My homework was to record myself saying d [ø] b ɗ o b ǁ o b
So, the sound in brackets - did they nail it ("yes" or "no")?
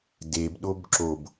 no